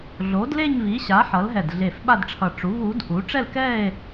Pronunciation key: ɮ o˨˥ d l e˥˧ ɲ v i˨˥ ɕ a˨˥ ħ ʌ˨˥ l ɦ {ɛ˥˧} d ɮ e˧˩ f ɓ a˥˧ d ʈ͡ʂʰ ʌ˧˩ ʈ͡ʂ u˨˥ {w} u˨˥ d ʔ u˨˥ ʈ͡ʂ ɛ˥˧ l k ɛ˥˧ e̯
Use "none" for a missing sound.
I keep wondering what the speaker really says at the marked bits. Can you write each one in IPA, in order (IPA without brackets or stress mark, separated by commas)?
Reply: ɛ˧˩, v